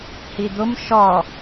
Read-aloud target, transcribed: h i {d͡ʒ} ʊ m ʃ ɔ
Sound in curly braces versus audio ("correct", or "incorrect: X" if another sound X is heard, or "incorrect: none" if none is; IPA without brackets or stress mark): incorrect: d̪